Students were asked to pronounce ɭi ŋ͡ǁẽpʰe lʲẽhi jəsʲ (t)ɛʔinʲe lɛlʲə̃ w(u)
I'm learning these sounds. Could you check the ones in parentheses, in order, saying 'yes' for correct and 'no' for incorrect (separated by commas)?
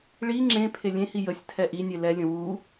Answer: no, yes